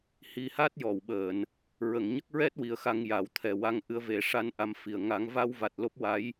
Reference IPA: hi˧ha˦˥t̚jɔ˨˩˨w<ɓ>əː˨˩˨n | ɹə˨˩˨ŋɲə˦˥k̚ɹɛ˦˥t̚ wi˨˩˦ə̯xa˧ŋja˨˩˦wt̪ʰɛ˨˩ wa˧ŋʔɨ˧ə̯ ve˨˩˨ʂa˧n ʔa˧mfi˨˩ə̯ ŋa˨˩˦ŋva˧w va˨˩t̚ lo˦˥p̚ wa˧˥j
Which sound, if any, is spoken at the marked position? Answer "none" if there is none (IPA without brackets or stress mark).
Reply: ɓ